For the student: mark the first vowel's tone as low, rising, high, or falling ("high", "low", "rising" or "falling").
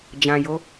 low